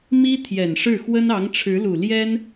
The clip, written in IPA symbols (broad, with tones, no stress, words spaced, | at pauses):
mi˥ t̪ʰjɛ˨˩nʂɻ̩˥˩ xwə˥nɑ˧˥ŋʈ͡ʂʰɻ̩˧˥lu˨˩ ljɛ˥n